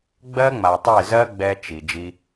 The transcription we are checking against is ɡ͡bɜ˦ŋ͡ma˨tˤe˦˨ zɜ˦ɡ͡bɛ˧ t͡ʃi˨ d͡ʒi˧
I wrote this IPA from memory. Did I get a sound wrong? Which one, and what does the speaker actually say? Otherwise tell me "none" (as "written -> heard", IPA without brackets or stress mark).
none